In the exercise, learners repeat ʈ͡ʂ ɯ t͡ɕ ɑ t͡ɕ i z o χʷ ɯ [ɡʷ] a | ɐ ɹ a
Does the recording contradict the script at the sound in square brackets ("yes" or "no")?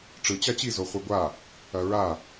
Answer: no